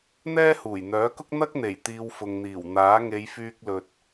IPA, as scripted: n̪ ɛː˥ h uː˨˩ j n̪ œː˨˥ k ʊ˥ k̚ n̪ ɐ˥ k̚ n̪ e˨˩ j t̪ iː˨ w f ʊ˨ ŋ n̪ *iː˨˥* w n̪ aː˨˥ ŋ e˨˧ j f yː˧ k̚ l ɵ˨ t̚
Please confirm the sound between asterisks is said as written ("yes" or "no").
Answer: no